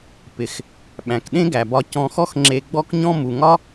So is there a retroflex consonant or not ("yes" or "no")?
no